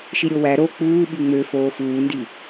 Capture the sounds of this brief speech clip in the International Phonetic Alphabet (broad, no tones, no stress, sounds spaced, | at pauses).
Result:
ʃ i ɾʲ o w æ ɾ o k͡p uː ɓ y ŋ͡m ø f oː f uː n d i